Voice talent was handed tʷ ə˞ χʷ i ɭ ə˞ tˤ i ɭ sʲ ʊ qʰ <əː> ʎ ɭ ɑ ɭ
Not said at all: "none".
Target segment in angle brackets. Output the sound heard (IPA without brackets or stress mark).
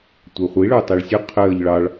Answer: əː